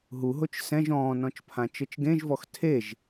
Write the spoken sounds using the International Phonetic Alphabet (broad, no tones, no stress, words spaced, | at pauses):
ɦuɦot͡ʃ sɛ̃ʒ ɔ̃ːnɔ̃t͡ʃpʰã t͡ʃɤt͡ʃɡẽʒvɔx tʰeʒ